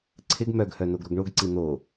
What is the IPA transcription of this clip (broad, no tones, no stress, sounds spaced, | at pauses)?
ǀʰ ɪ ɡ m œ ɡ h œ n o ɡ ɾ o ɡ ɳ o ɡ ǀ i n̪ o